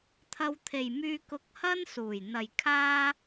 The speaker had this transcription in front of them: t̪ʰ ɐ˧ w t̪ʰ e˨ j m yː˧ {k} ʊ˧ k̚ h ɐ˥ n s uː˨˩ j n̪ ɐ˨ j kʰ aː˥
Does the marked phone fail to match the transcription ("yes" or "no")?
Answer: no